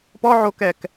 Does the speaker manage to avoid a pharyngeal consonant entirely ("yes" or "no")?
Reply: no